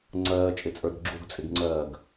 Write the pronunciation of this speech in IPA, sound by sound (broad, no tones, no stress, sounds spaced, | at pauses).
ŋ͡ǀ ɜː t͡ʃʼ ɪ t͡sʼ ə˞ d ɡ͡ǁ u ɡ t͡sʼ ɪ ɡ ŋ͡ǀ ɜː ɡ